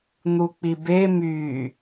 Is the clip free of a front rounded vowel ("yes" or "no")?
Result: no